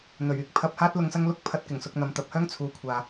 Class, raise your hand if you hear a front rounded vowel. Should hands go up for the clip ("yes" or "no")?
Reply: yes